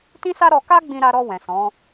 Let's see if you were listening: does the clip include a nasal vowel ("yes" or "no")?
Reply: yes